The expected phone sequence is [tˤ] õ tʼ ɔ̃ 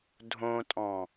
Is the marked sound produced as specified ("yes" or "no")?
no